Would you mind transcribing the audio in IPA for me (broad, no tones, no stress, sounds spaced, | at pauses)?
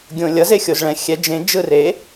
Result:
ɡʲ õ lʲ ʌ z e xʲ o z ɭ ɛ̃ xʲ ɛ d͡ʒ ẽ d͡ʒ ɯ r e